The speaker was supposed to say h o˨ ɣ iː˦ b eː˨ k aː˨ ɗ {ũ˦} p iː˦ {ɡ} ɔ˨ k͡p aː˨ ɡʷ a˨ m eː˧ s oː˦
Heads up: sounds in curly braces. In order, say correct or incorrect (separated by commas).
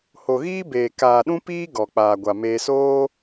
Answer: correct, correct